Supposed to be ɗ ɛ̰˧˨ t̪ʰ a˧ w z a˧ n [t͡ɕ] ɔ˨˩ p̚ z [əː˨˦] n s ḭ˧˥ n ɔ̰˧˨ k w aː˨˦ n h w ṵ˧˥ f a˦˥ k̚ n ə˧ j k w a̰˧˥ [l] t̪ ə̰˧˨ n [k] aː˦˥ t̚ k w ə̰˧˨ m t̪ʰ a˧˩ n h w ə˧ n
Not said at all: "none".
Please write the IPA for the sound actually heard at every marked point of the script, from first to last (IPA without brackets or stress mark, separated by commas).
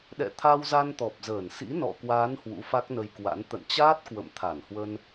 t̪, əː˧˩, n, t͡ɕ